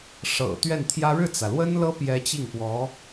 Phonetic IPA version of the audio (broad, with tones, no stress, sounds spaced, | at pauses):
ʂ ɤ̰˨˩ t̪ ɥ ɛ˥˩ n t̪ʰ j ä˥ ɻ ɻ̩˥˩ t͡s ä˩ l w ə˥ n l ɤ˥ p j ɛ˧˥ t͡ɕ i˥˩ ŋ p w ɔ˧˥